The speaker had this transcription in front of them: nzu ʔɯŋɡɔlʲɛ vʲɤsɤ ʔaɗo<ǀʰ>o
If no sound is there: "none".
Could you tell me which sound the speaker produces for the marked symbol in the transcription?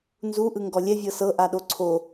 ǀʰ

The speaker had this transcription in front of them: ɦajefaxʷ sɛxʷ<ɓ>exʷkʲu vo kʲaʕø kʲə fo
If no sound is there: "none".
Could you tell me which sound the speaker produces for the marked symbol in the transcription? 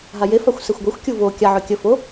ɡʷ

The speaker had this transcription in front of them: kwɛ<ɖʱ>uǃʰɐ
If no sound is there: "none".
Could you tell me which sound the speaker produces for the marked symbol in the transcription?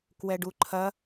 ɖ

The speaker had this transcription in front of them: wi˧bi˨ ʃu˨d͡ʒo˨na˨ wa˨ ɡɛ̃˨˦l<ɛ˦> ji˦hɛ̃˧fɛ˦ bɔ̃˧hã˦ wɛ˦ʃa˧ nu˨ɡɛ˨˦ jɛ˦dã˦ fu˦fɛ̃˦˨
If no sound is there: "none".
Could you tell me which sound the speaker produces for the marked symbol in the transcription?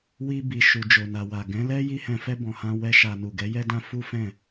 ɛ˦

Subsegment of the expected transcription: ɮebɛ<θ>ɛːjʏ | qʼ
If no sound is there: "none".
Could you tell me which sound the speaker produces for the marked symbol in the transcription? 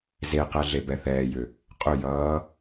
θ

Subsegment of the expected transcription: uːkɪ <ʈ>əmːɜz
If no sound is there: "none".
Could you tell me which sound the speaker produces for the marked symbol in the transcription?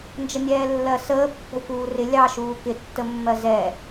tː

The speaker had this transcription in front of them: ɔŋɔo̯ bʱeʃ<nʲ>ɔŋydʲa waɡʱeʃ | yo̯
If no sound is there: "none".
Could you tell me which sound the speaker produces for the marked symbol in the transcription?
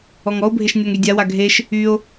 nʲ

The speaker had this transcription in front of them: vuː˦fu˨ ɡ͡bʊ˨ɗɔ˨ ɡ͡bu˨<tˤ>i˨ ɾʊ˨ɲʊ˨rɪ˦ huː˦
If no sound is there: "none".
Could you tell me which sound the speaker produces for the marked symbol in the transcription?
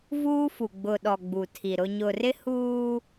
tʰ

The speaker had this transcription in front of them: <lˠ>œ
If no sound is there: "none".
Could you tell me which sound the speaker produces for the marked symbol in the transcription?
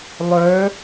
lˠ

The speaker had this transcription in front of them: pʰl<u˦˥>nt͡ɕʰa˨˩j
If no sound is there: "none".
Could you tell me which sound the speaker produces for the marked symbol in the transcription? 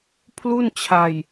u˥˩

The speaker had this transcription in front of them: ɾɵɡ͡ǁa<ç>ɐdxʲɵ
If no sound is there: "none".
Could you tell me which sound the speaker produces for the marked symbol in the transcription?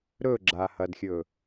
h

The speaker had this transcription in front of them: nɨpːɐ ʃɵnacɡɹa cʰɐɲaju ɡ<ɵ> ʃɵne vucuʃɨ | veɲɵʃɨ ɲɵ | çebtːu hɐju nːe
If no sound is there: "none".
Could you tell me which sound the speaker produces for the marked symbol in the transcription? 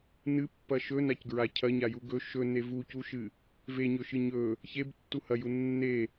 ɵ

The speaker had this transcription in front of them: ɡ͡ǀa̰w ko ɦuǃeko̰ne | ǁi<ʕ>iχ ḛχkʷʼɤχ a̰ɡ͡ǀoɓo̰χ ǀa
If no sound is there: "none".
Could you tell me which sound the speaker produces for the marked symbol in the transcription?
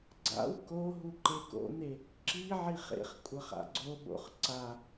ʕ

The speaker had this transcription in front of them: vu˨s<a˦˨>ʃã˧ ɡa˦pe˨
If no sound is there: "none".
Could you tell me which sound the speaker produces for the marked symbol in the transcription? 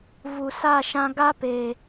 a˦˨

